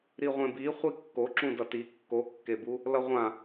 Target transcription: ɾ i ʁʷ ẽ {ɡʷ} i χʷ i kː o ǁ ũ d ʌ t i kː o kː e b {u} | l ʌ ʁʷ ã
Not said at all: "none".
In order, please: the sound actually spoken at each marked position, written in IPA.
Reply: b, u

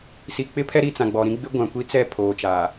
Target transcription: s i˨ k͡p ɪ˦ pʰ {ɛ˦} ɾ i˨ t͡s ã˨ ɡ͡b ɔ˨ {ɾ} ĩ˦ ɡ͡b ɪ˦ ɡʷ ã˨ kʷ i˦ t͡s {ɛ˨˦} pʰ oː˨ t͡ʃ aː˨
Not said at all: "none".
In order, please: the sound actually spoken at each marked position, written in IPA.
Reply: ɛ˦, ɾ, ɛ˦˨

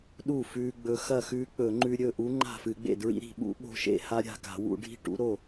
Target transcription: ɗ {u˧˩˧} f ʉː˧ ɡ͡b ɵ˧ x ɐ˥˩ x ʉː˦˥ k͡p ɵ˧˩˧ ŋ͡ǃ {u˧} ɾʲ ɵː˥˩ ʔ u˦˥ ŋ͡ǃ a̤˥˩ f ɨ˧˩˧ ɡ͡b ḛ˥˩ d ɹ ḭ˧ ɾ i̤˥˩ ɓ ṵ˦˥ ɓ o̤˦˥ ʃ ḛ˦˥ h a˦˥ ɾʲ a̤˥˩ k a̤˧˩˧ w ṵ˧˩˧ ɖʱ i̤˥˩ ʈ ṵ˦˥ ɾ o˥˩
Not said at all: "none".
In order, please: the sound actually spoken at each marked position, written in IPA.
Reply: u˥˩, ʉ˧

